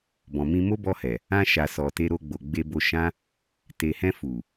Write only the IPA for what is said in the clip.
b ɔ̃˨ m ĩ˧ m o˦ b ɔ˧ h ɛ˨ | ã˧ ʃ a˨ s ɔ˨ t e˧ ɾ o˧ ɡ͡b o˨ ɡ͡b e˧ b o˧ ʃ ã˦ | t e˨ h ɛ̃˧ f u˨

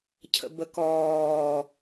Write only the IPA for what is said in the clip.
cʰ ə̰ b ə k ɔː

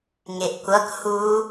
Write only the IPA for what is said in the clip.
ŋ e ʔ kʷ ʌ k h u

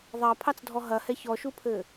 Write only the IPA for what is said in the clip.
ðˤ ɐ pʰ ɑ t͡s dʱ ɔ ɦ ɐ h ɛ ç ɔ ʃ u pʰ ɘ

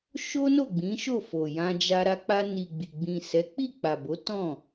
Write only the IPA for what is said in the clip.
ʃ o˦ n o˦˨ ɡ͡b ĩ˨˦ ʃ o˦˨ f o˨ j ã˧ d͡ʒ a˧ ɾ a˧ k͡p a˧ n i˨ ɡ͡b i˨ ɡ͡b ĩ˨ s ɛ˨˦ k͡p i˦˨ k͡p a˨ b o˨˦ t ɔ̃˦˨

